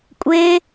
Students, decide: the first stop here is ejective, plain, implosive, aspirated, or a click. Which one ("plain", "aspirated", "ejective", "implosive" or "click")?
ejective